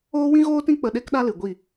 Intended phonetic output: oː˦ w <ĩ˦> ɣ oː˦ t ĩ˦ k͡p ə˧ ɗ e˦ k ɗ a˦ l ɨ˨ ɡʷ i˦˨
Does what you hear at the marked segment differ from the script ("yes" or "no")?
no